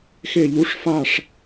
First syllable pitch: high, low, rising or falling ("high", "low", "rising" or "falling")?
falling